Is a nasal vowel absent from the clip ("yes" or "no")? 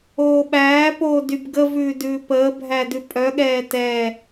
yes